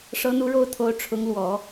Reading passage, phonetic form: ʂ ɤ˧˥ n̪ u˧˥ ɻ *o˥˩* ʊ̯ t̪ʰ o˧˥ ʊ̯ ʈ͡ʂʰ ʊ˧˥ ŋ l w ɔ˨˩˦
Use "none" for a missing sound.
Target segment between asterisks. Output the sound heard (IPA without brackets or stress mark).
o˥˩